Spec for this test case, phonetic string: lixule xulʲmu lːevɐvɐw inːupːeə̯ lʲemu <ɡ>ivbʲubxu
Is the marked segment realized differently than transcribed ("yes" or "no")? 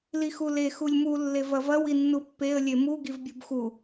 no